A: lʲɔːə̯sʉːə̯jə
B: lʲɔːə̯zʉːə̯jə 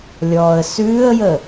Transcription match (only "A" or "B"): A